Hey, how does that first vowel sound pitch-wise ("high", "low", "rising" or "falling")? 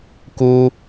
high